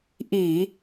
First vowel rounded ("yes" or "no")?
no